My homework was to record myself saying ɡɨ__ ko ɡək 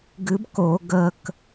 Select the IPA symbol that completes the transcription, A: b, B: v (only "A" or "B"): A